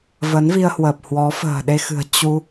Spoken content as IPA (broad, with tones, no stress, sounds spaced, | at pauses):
v ə˨˦ n v i˧ ə̯ h w əː˨˩ p̚ h w ɔ˨˦ f ə̤ː˨˩ ɗ e˧ x ɨ̤˨˩ ə̯ t͡ɕ u˧